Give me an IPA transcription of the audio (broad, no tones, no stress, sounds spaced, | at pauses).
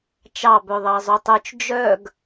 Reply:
t͡ʃ ɑ b œ ðˤ ɑ zˤ o tˤ œ t͡ʃ d͡ʒ œ ɡ